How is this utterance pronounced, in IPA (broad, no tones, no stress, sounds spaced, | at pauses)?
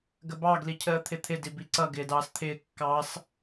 ɡ ə b ɑ ɡ l i cʰ əː t̪ʰ ɪ t̪ʰ ɪ d i b i ǀ ʌ ɡ ɪː d ɑː s t̪ʰ ɪː kː ɑ s